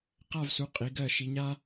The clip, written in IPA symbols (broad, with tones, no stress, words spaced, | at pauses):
qa˥˧vsu˩˥ qʼi˩˧ɡɜ˧˩ ʃi˩˧ɲa˥